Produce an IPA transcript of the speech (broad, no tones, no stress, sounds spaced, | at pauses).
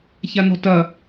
ç a n ɔ̤ t ɐ